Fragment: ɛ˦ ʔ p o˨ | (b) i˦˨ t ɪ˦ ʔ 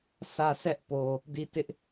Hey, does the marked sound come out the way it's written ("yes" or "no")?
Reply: no